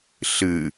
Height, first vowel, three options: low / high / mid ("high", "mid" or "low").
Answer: high